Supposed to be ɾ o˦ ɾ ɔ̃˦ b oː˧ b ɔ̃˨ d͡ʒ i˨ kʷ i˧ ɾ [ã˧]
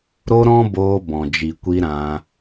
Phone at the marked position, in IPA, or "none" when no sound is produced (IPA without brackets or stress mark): ã˧